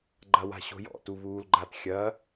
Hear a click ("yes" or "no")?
yes